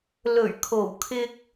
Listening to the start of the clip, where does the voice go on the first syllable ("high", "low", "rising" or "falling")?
low